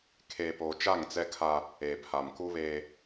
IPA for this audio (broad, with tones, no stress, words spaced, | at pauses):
kʰeː˨poː˨ t͡ʃa˦˨ŋt͡sɛ˦kʰa˦ | eː˨pʰa˨mku˦βeː˦